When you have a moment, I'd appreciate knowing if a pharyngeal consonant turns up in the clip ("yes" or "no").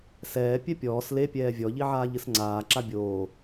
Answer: yes